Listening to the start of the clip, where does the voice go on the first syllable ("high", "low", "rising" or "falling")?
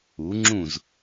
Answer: rising